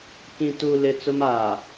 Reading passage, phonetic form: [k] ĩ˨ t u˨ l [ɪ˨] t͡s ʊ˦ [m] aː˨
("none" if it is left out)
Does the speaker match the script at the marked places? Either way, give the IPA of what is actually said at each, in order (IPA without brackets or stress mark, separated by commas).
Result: k, ɪ˨, m